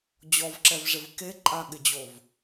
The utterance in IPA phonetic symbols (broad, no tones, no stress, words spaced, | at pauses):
d͡ʑɔvǁɛvʐɪv keǃʼaɠɪd͡ʑov